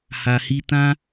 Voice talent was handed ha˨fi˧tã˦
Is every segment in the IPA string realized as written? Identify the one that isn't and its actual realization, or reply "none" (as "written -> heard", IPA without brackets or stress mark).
f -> h